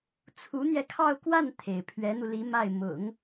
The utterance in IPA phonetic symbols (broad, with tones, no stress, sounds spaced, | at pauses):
t͡sʰ u˧˥ n̪ j ɛ˧ kʰ ɑ˥˧ ʊ̯ k w a˥˩ n t̪ʰ e˩ ɪ̯ pʰ ɥ ɛ˧˥ n̪ u˧ l i˧˥ m a˥˩ ɪ̯ m ʊ̰˨˩˦ ŋ